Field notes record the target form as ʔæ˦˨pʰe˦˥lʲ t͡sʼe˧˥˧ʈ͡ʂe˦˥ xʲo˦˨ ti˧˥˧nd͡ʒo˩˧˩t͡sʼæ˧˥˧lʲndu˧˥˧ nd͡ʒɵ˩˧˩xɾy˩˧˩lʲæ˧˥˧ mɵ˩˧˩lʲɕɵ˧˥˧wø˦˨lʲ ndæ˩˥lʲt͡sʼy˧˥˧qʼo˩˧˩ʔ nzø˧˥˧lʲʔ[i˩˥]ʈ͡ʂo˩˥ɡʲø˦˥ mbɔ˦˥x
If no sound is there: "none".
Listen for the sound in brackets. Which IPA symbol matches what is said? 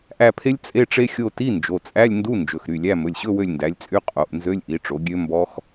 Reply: i˩˥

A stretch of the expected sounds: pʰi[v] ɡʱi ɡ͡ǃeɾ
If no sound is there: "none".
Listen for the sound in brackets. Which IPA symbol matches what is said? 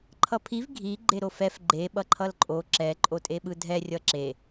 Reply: v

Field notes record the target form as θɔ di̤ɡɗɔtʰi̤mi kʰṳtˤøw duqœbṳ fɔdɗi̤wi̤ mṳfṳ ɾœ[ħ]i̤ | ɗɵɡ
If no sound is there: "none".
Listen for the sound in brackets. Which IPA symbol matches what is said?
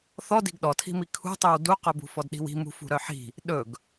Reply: ħ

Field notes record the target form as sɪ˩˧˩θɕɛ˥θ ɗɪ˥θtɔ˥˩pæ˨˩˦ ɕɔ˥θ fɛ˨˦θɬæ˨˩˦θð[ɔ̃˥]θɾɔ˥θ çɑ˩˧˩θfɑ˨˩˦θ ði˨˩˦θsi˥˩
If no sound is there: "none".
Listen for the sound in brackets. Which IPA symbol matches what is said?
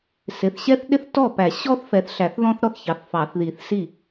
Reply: ɔ̃˥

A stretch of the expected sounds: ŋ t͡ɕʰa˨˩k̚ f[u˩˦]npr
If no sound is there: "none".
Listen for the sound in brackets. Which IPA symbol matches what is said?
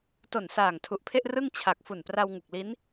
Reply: u˨˩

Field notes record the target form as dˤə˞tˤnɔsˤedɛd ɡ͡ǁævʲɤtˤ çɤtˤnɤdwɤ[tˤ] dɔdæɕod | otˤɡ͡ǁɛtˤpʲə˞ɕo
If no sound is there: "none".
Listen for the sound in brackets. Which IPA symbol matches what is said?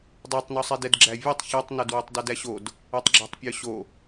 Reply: tˤ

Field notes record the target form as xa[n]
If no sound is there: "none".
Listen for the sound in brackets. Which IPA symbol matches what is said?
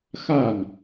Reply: n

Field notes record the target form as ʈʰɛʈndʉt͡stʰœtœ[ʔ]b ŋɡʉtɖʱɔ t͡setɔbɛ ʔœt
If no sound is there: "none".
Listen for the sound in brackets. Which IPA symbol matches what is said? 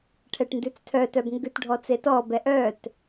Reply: none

